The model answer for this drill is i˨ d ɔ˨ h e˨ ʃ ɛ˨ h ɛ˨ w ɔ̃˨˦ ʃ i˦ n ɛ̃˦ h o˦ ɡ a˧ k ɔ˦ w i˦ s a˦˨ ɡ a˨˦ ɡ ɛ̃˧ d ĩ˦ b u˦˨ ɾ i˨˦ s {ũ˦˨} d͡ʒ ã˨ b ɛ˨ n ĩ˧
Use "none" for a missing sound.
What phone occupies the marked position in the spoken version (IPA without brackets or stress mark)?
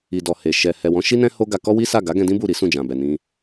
ũ˦˨